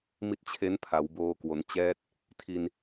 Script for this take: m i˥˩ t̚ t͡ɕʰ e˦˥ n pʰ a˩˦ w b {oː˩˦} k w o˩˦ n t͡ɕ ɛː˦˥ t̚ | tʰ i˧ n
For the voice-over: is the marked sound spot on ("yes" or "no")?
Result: no